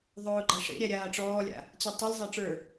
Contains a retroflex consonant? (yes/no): yes